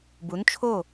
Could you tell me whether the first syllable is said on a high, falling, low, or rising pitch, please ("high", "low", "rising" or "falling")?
rising